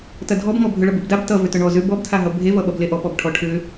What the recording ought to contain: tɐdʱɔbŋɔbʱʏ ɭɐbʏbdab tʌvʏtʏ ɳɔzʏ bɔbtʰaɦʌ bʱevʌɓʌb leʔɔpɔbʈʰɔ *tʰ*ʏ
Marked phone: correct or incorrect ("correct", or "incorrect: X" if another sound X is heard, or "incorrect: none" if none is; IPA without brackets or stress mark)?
incorrect: ʈʰ